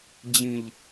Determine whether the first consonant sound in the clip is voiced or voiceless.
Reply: voiced